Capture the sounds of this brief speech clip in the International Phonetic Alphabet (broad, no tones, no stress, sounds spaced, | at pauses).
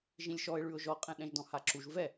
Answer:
ʒ ĩ lʲ ʃ ɔ ɪ̯ ɭ ʉ ʊ̯ ʒ ɔ qʼ ɛ̃ ɗ ɛ̃ ʒ d ɔ̃ h a ǁ u ʒ v ɛ